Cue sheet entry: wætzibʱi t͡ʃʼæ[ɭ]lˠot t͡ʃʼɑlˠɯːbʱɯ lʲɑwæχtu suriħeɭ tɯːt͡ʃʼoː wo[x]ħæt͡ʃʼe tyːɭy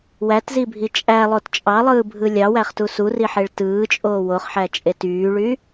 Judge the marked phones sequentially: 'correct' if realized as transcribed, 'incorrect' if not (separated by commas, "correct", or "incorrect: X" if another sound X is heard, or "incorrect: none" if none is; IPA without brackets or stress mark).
incorrect: none, incorrect: χ